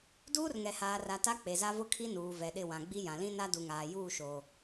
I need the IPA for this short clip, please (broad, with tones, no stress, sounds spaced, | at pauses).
d uː˦ r ŋ ɛ˨ h aː˨ r a˨ t a˦ k͡p e˨ z a˦ v ʊ˦ kʰ i˦ n uː˨ v ɛ˨ ɗ ɪ˦˨ w ã˨ ɡ͡b i˦ j ã˨ l ĩ˦ n a˦ d u˨ ŋ aː˨ j uː˦˨ ʃ oː˨